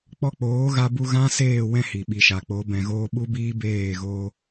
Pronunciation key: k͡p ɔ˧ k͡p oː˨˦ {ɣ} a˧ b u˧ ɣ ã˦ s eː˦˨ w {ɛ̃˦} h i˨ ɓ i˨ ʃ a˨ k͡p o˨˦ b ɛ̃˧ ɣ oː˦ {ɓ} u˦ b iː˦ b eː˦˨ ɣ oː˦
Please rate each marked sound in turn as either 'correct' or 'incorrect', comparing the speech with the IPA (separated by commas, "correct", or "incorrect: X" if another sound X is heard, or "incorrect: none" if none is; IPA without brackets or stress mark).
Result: correct, correct, correct